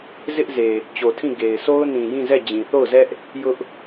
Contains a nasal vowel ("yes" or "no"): yes